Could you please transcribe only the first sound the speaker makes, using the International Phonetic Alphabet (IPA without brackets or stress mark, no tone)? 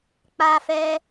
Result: k͡p